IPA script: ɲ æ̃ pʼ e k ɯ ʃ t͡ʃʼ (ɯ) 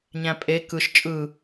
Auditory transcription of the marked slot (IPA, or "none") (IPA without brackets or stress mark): ɯ